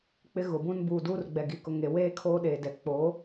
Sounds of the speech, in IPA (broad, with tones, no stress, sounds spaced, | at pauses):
k͡p ɪ˦ ɣ ʊ˨ b ũ˦ n b uː˨ d u˦ r ɡ͡b ɛ˨ ɡ i˨ k ʊ˨ ŋ e˨ w eː˦ kʰ oː˦ ɗ eː˨ d ɛ˨ k͡p o˨˦